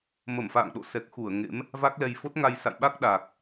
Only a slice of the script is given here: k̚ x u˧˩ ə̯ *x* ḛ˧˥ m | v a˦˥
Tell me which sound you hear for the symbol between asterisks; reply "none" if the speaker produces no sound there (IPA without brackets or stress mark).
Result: ŋ